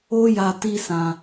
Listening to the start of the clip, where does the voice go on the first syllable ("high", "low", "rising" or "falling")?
high